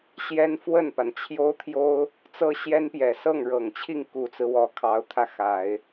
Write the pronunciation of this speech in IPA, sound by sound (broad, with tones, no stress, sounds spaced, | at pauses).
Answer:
ɕ j ɛ˥ n f w ə˥˩ n p a˩ n t͡ɕʰ j o˥ ʊ̯ t̪ʰ j o˥ ʊ̯ | t͡s ɤ˥ ɕ j ɛ˥ n p j ɛ˨˩ s ɤ˥˩ ŋ ɻ ɤ˨˩ ŋ t͡ɕʰ i˥˩ ŋ k u˨˩ t͡s ɹ̩˦ w ɔ˧˥ kʰ ɑ˧˥ ʊ̯ t̪ʰ ä˥˩ x a˨˩˦ ɪ̯